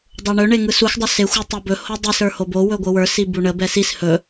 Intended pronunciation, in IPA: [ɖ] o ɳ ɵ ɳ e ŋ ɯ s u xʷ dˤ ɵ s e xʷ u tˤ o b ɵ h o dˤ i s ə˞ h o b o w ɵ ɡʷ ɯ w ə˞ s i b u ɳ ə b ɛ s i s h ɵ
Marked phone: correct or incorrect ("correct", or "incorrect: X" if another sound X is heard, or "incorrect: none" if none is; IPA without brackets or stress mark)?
incorrect: dˤ